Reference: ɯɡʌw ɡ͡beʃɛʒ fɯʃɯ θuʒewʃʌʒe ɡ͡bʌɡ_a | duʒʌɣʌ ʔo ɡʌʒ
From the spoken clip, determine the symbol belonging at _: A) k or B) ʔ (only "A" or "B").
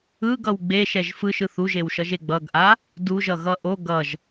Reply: B